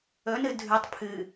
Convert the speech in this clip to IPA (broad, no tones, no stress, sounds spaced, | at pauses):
ɵ n ɨ dʱ ʉ tˤ pʰ ɨ